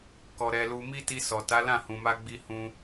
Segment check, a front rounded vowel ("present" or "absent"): absent